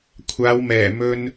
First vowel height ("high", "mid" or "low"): low